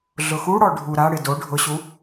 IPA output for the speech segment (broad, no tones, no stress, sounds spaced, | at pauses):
ɮ ʊ x u ɽ ɔ ɖʱ u ɾ a ɽ ɪ d o ɖʱ ʊ ɕ u